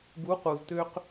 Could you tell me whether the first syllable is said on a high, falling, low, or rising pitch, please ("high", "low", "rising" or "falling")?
rising